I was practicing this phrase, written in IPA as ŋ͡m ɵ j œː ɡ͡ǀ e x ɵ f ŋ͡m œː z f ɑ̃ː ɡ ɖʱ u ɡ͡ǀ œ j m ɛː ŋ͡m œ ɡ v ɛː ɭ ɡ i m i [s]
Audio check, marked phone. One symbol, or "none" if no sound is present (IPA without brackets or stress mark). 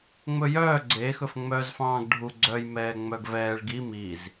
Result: z